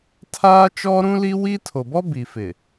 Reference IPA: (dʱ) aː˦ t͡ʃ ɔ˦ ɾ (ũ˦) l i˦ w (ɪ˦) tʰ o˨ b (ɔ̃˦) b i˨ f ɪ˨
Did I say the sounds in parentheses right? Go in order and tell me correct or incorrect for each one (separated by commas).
incorrect, correct, incorrect, incorrect